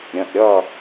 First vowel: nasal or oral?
nasal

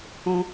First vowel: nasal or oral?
nasal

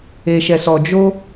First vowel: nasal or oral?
oral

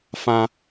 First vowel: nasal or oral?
nasal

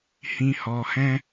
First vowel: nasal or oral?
nasal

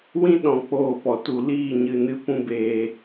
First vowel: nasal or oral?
nasal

